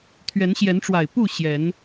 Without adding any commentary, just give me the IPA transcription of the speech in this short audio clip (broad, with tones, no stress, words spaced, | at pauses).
t̪ʰɥɛ˨˦nɕjɛ˨˦nʈ͡ʂwa˨˩ɪ̯ pu˥˨ ɕjɛ˨˦n